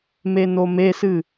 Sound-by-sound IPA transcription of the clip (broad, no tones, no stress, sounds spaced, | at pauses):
m e n o m e s ɨ